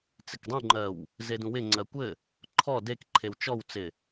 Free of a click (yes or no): no